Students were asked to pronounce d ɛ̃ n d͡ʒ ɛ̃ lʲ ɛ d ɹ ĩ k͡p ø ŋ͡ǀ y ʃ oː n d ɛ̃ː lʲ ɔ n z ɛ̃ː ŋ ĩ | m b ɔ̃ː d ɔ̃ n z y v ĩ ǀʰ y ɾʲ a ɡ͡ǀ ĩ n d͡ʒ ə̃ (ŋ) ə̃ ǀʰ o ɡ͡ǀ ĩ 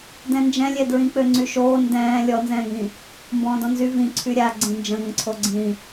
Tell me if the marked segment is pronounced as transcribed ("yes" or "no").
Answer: yes